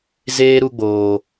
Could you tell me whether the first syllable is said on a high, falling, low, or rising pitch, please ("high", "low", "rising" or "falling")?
high